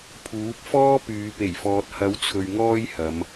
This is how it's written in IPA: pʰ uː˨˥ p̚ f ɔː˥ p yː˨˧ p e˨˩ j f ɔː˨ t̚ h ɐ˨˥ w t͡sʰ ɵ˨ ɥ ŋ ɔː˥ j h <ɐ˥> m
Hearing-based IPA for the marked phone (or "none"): ɐ˨˧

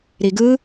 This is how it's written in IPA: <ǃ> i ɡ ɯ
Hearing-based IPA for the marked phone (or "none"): ɾ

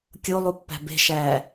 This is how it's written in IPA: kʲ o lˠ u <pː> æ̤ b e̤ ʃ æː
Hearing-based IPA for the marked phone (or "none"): pː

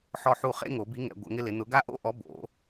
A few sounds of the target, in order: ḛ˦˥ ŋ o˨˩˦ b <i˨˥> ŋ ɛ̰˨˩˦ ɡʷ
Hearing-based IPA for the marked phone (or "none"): i˨˥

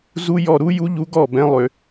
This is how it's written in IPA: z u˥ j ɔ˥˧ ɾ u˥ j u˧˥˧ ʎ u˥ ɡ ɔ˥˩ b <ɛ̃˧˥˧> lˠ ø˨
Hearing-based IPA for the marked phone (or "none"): ɛ̃˧˥˧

